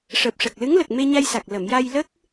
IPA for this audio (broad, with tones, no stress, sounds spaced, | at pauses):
ʂ əː˨˩ p̚ ʂ ə˨˩ k̚ l ɨ˧˥ ŋ l ə˨˩ k̚ m e˧ ɲ a˧ j s a˨˩ k̚ l ə˨˩˨ m j a˧ j l ə˦˥ k̚